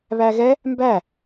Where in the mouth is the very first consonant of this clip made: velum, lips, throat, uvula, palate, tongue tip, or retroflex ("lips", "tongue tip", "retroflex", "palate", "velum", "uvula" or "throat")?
lips